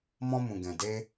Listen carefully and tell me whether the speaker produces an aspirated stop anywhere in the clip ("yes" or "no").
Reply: no